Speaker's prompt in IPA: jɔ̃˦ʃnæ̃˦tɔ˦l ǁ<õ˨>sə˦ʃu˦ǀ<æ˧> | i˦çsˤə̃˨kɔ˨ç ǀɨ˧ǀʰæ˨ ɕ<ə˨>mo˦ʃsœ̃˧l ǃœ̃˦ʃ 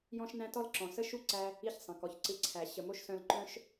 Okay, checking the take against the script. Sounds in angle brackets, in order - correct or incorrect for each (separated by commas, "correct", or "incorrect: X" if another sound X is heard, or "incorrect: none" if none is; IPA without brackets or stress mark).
incorrect: ɔ̃˨, correct, correct